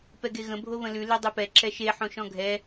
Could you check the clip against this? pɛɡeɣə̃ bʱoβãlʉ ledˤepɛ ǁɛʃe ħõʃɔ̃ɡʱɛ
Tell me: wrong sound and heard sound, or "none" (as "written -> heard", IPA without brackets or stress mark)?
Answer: ã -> ə̃